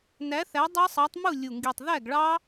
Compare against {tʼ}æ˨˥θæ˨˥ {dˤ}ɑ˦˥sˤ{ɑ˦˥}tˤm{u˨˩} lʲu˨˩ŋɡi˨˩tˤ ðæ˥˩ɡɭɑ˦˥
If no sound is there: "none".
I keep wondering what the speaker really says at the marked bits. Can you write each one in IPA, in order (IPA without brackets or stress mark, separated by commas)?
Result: n, dˤ, ɑ˨˥, u˥˩